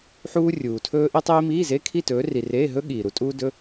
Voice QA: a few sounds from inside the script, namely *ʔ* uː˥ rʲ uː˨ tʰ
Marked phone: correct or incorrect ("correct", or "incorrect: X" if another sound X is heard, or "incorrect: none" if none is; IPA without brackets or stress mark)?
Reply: incorrect: ħ